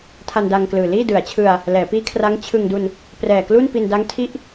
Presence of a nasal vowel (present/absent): absent